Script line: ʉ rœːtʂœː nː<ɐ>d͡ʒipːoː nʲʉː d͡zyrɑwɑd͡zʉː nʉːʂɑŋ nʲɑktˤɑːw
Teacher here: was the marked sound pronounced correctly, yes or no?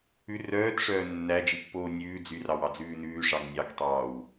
no